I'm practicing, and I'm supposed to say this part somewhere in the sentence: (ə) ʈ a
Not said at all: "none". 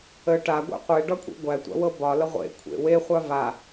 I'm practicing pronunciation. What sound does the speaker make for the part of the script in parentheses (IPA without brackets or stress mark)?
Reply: ə